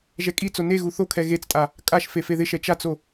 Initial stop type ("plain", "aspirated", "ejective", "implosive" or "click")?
ejective